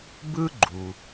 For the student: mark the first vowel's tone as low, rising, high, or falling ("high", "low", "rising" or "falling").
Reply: high